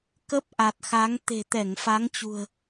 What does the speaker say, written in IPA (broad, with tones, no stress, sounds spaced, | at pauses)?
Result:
k ə˦˥ p̚ ʔ a˨˩ t̚ x a˨˦ ŋ t̪ e̤˨˩ t̪ ɛ˧˩ ŋ f a˨˦ ŋ t͡ɕ ṳ˨˩ ə̯